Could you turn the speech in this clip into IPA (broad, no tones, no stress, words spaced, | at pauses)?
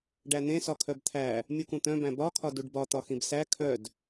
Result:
ɖæn̪ẽsɒ kʰœbt̪ʰæ | mʲukũt̪œ̃ bæ̃bɒkʰɒ duɖbɒ t̪ɒxĩbsæ kʰœd